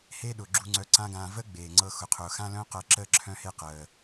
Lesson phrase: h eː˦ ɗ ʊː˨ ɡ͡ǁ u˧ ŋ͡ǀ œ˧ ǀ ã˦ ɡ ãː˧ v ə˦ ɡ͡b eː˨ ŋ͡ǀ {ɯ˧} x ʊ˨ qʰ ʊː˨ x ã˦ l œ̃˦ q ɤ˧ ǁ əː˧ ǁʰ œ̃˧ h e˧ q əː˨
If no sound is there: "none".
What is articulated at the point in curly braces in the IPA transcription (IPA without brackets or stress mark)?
ɤ˧